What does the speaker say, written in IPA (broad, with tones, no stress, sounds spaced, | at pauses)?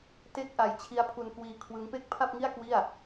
t e˥˩ k̚ ʔ a˧ j t͡ɕʰ i˦˥ a̯ pʰ u˧ n k w iː˧ kʰ w ɯ˦˥ ŋ p e˥˩ k̚ pʰ a˥˩ p̚ ŋ i˥˩ a̯ k w i˥˩ a̯